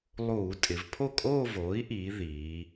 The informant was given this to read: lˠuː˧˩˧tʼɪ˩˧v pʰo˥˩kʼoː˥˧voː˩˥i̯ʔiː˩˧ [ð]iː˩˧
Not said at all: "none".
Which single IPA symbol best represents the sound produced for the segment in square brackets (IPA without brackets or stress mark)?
ð